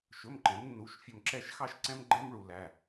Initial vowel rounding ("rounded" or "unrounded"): rounded